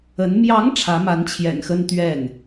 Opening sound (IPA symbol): ə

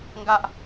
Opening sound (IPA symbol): ŋ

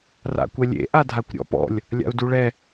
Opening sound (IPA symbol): r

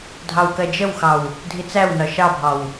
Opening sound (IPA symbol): dʱ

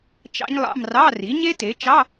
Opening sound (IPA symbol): t͡ʃ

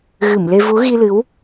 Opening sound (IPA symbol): ɣ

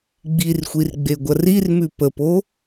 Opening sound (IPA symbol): ɡ͡b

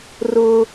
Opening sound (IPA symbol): r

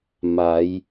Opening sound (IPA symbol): m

